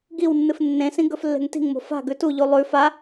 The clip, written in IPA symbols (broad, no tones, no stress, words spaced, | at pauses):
ɡiwnːɨf nːẽsĩ ɡɵflːe̤ŋti̤ŋmo̤ fa̤ɡʉ tuʎu lˠʉ fa